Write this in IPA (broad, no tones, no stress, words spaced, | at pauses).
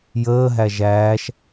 jəːɦæ ʒæːʃ